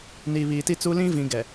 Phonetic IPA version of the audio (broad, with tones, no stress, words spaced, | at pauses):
ni˨ βiː˨ti˦t͡su˦ lĩ˦vĩ˨ ɡɛ˨